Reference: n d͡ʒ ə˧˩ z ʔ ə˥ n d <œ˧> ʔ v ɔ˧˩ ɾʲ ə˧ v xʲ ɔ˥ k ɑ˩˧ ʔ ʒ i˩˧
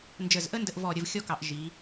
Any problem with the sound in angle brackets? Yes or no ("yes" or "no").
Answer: yes